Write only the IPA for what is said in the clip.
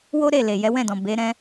w o˦ ɾ e˦˨ l e˨ j ɛ˨˦ w ɛ̃˦˨ d ɔ̃˨ b e˨˦ ɾ ɛ̃˦

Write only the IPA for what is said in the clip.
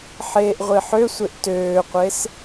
ħ eː ʔ ʁʷ i ħ ø sʷ e ʔ t øː qʷ e s

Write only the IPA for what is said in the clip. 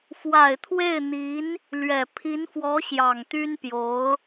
f w a˨˩ ɪ̯ t̪ʰ w e˥˩ ɪ̯ n̪ i˧˥ n | l ɥ ɛ˨˩ pʰ i˧˥ n f w ɔ˧˥ ɕ j ɑ˨˩ ŋ t̪ y˥ n p j o˧˥ ʊ̯

